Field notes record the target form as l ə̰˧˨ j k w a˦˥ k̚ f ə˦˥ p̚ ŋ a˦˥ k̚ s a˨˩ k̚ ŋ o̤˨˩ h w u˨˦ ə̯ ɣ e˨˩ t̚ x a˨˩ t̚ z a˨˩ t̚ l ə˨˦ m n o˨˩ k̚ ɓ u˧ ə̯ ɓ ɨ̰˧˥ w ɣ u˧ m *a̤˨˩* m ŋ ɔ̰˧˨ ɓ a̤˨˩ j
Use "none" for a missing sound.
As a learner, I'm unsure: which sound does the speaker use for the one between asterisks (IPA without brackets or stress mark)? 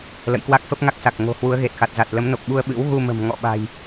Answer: ə̤˨˩